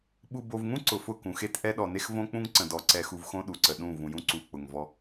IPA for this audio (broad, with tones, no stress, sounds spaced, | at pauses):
ɓ u˨ b o˨ v ŋ ũ˦ ǀ ʊ˨ f ʊ˦˨ k ũ˨ x e˦ t ʔ ɛ˦ ɗ ɔ˨ n e˦ x v õ˦ k͡p ũ˦ ŋ ǀ ə̃˨ d ɔ˨ ǀ ɛ˨ x u˨ v x õ˦ ɗ u˨ ǀ ə˨ ɗ ũ˦˨ v ũ˨ j ũ˦ ǀ u˨ k͡p ʊ˨ ŋ v ɔ˦